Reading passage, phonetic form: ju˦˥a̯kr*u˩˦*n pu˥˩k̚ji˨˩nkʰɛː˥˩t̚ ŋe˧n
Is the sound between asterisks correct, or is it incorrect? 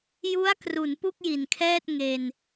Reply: correct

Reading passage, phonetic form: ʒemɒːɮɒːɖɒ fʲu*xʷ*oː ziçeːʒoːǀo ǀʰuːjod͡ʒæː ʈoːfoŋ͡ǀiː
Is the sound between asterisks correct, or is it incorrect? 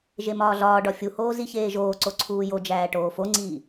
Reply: incorrect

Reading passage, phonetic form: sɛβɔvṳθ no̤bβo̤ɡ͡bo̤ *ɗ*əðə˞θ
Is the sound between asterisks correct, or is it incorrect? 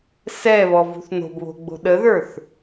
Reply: correct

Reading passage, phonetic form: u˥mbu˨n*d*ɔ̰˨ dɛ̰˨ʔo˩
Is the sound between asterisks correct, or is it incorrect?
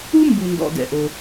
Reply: correct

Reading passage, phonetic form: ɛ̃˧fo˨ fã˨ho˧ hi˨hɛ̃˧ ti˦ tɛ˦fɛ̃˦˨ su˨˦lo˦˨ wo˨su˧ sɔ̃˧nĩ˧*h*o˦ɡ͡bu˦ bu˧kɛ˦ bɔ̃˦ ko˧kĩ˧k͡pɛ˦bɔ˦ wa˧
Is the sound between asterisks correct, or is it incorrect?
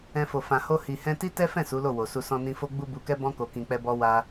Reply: incorrect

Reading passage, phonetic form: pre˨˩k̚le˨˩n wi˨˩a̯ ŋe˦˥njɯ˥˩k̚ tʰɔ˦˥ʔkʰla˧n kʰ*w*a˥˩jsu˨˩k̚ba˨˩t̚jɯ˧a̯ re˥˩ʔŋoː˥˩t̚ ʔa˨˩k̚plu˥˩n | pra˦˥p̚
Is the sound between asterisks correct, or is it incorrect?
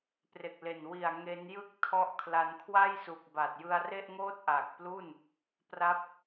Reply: correct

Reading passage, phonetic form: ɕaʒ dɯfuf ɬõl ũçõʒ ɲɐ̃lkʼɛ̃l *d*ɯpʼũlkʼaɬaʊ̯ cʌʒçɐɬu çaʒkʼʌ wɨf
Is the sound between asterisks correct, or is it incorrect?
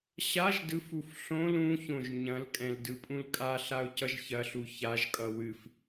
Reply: correct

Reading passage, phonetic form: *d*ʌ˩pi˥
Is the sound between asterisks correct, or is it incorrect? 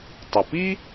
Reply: incorrect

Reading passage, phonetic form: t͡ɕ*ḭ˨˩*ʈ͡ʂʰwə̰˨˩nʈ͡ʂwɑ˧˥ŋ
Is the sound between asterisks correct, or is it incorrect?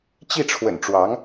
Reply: incorrect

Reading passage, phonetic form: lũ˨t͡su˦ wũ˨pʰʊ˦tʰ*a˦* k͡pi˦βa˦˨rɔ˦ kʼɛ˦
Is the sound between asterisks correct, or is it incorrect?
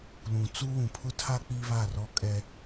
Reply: correct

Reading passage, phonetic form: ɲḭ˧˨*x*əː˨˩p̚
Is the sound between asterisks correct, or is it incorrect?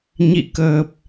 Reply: incorrect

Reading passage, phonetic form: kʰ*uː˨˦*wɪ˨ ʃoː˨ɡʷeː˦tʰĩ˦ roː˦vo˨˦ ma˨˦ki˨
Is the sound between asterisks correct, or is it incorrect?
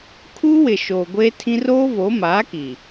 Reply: incorrect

